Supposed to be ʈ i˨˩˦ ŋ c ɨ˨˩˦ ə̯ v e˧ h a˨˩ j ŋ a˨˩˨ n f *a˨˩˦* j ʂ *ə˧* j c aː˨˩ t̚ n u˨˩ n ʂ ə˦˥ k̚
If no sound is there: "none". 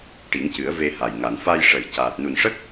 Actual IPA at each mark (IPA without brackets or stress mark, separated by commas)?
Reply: a˧, ə˨˩˨